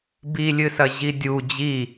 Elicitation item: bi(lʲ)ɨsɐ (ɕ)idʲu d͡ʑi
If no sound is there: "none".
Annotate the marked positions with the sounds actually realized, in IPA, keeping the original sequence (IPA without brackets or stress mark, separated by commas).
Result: lʲ, ʑ